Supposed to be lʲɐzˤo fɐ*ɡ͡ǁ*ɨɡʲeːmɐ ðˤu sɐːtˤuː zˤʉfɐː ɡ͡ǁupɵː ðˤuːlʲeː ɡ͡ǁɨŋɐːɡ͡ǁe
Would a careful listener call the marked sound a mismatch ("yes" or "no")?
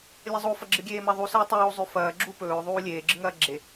no